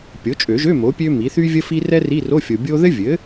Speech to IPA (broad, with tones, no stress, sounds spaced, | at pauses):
pʲ o˩˥ t͡ʃʼ ø˨˩˦ ʒ ø˧˥˧ m o˩˥ pʲ ø˥ m i˩˥ θ y˥ vʲ ə˥ f i˥ r ɛ˥ r i˧˥˧ r o˧˥˧ fʲ o˨ bʲ o˥ ð ɘ˥ vʲ ɘ˩˥